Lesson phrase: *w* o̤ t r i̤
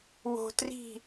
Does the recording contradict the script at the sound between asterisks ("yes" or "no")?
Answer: no